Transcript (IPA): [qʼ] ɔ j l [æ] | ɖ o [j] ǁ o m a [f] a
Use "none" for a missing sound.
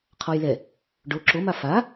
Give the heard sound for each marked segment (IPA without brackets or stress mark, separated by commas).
qʰ, ɛ, none, f